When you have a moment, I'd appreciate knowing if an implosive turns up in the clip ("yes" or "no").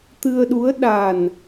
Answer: yes